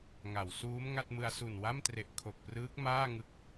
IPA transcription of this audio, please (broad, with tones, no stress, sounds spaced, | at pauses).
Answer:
ŋ a˩˦ w s uː˦˥ m ŋ a˥˩ t̚ m ɯ˧ a̯ s u˨˩ n w a˥˩ m t r e˨˩ ʔ kʰ o˨˩ k̚ p r ɯː˦˥ k̚ m aː˥˩ ŋ ɯ˦˥ k̚